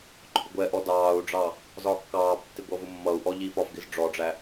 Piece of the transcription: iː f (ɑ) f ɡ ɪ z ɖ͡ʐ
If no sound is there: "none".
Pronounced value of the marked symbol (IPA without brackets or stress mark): ɒ